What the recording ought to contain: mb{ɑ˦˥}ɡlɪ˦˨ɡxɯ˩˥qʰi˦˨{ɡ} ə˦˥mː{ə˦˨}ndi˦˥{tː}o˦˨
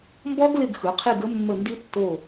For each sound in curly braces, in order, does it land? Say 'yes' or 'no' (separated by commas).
no, yes, yes, yes